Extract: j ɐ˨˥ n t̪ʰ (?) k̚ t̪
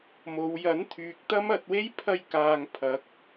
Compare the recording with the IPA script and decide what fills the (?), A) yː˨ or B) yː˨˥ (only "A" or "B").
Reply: A